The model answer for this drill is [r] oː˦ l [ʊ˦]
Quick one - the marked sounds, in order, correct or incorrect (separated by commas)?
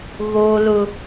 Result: incorrect, correct